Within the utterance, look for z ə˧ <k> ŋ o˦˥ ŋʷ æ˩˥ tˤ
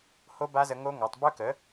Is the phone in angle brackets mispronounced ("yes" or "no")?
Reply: yes